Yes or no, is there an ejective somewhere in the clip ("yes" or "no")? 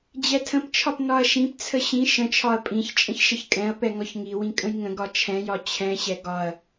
yes